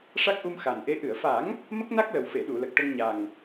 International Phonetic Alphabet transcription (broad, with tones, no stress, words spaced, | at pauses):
ʂa˦˥k̚ʔu˧mxa˨˩nʔe˧˥ ʔɨ˨˩˨ə̯fa˨˩˦ŋ | mə˦˥k̚na˦˥k̚lə˨˩wfe˨˩˨ ɗu˨˩˨lə˨˩k̚ʈə˧ŋ ɲa˨˩ŋ